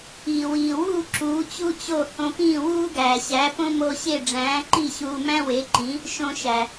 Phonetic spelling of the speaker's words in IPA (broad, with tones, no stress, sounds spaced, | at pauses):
iː˩ w iː˩ w uː˥˩ ǁ uː˩˥ t͡ɕ u˥ t͡ɕ o˥˩ h õ˧ p ĩː˥˩ w uː˥ ɡ æː˩ ɕ æ˩˥ p õ˥ m o˧ ɕ e˥˩ ɖ͡ʐ æ̃ː˩˥ ǃ i˥˩ ɕ uː˧ m æ̃˥ w e˩˥ ǃ ĩ˩˥ | ʃ õ˧ ʃ æ˩